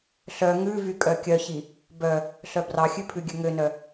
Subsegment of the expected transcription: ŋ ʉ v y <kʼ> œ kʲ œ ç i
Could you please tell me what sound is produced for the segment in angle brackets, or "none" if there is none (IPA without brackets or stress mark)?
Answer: kʼ